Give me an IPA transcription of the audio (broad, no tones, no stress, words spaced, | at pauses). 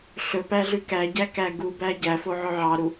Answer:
ɬɵpæ ɮʉkæɟæ kæɡubæ ɟæfo ʕɵʕɑɾu